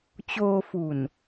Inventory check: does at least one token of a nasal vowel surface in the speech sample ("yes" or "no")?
no